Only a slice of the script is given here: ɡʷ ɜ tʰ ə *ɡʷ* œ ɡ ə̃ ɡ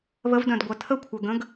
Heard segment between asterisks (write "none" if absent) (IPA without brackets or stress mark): kʷʰ